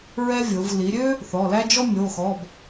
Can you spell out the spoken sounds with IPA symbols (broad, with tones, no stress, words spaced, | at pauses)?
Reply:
ɹɛ˥vʲo˩˧v li˩˧ɾʲø˥ | θɔ˩˧˩læ˥ d͡ʒɔ˥ mʲo˩˧˩xɔ˩˧˩b